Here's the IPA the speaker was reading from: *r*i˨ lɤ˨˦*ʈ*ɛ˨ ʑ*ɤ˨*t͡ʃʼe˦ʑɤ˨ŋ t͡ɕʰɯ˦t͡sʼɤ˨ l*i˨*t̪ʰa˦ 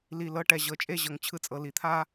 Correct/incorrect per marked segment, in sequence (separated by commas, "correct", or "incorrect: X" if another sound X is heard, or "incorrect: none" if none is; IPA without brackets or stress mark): incorrect: l, correct, correct, correct